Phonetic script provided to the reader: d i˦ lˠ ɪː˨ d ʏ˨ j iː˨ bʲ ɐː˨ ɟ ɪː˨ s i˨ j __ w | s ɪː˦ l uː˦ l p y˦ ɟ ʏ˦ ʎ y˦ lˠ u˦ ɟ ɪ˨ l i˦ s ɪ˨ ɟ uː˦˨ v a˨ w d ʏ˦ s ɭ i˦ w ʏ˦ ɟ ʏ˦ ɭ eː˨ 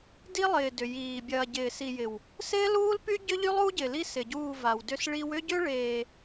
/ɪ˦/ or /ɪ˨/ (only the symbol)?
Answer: ɪ˨